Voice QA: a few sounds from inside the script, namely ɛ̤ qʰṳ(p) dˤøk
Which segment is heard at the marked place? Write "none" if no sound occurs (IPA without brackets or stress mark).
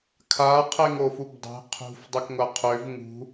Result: f